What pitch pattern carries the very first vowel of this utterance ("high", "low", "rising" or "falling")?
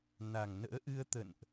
low